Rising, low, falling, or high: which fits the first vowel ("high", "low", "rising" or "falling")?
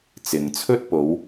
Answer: low